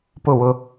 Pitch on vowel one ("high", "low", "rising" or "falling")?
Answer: falling